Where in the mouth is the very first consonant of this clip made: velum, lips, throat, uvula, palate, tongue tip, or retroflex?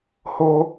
throat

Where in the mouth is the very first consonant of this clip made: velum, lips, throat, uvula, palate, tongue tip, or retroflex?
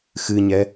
velum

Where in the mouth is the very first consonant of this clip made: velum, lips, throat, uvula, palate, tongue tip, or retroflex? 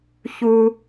palate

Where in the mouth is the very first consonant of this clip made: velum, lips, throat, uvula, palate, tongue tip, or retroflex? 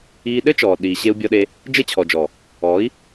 tongue tip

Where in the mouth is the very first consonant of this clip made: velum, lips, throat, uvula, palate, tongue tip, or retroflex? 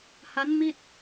throat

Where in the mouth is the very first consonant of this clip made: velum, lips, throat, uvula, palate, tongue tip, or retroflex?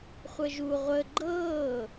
uvula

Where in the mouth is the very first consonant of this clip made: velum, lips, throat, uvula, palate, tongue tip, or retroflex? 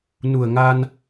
tongue tip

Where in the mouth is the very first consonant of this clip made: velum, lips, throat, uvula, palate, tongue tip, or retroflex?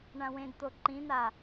retroflex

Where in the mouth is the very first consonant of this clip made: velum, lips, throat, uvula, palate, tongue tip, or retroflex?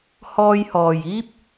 throat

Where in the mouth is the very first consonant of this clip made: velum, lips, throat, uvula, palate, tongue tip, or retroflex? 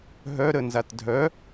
throat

